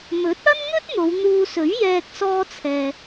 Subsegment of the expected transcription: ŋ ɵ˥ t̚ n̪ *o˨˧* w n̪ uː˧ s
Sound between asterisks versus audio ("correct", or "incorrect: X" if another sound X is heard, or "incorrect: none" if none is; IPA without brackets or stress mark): correct